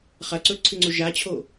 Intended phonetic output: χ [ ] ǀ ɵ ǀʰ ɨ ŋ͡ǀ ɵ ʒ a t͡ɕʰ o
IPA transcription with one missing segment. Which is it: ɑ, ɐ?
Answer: ɐ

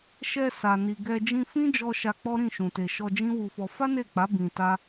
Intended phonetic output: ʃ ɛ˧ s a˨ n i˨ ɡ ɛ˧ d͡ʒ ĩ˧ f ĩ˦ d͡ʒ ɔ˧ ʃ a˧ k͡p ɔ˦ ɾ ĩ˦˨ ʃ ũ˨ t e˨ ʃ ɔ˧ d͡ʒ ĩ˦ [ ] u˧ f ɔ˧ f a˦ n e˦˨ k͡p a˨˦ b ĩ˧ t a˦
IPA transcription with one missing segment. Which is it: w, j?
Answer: w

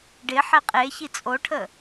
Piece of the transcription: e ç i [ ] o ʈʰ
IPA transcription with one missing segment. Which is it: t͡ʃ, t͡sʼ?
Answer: t͡sʼ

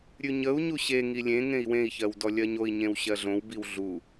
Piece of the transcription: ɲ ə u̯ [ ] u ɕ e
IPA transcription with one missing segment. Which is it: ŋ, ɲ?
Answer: ɲ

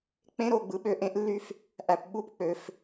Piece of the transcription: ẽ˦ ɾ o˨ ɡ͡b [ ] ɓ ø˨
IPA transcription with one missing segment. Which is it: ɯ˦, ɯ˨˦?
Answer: ɯ˨˦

